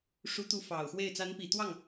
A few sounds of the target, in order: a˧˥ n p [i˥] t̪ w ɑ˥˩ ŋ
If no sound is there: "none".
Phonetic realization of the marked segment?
i˨˩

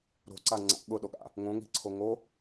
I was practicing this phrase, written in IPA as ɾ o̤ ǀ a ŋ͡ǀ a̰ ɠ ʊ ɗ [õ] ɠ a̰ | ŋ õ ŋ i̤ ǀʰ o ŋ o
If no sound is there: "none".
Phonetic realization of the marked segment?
o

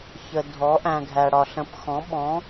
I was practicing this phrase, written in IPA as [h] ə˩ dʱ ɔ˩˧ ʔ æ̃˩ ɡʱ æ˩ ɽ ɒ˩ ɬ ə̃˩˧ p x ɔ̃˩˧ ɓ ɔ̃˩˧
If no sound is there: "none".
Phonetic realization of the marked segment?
ç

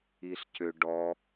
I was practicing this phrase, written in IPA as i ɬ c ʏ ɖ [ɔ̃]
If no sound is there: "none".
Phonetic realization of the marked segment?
ɔ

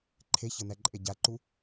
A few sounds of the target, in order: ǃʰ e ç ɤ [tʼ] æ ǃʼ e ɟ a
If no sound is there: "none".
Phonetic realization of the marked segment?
n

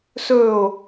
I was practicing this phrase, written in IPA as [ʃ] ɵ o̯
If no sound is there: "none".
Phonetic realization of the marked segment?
s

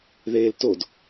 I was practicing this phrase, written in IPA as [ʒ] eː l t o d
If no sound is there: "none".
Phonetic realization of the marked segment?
ð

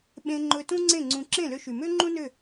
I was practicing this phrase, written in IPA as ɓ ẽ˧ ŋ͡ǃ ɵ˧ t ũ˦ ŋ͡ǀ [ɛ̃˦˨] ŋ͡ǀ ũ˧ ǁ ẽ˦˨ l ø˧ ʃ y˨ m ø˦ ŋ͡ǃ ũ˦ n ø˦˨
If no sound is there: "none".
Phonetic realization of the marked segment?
ẽ˦˨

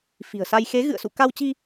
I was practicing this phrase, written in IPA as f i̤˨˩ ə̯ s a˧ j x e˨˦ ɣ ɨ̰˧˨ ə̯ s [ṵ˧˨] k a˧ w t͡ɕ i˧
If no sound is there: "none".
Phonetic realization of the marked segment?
ṵ˧˨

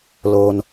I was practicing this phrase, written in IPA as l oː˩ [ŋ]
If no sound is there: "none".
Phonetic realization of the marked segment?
n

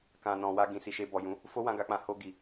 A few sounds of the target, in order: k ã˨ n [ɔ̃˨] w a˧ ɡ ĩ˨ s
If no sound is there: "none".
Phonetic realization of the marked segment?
ɔ̃˨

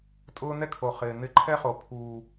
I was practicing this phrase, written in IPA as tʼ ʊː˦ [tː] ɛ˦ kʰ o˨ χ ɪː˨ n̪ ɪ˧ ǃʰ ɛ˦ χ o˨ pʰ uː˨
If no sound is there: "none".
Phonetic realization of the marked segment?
n̪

